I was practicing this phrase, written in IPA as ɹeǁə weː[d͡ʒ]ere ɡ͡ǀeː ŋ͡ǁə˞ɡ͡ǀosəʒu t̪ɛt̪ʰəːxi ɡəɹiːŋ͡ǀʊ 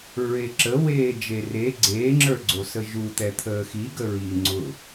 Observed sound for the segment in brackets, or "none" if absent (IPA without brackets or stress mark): d͡ʒ